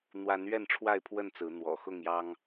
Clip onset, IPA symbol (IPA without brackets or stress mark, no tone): n̪